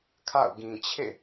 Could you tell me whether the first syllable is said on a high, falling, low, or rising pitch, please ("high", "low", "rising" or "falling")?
falling